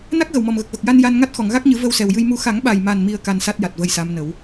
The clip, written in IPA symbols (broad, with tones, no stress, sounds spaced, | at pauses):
n a˦˥ k̚ ɣ ə˨˩ w m ɔ˨˩ m ɣ ə˨˩ k̚ v ə˨˩ k̚ j a˧ n j a˧ n ŋ a˦˥ t̚ x ɔ˨˩˨ ŋ ɣ a˦˥ k̚ ɲ ɨ˨˩˦ v ə˧ w s ɛ˨˩ w j ɨ˧ j m u˧ x a˨˩˦ ŋ ɓ a˨˩ j m a˨˩ n m i˨˩ ə̯ k a˧ n s a˦˥ t̚ j a˨˩ t̚ v ə˧ j s a˧˥ m n ə˨˩˦ w